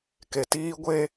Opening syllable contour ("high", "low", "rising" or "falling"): low